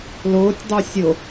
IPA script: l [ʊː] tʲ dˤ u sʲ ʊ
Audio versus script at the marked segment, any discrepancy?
no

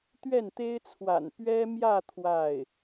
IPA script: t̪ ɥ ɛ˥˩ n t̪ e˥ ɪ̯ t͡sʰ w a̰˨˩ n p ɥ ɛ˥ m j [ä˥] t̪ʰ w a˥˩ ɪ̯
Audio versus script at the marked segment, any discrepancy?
yes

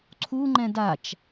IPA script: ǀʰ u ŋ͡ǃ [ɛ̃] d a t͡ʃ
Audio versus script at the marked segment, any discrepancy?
no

